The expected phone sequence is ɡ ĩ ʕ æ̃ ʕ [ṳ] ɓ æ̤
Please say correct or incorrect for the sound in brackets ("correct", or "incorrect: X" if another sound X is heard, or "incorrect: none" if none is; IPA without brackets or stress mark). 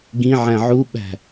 incorrect: u